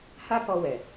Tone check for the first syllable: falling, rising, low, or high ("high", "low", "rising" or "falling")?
high